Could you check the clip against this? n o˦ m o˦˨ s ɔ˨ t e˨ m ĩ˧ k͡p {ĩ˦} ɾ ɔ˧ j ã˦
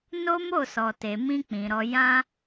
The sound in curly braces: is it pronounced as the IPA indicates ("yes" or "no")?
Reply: no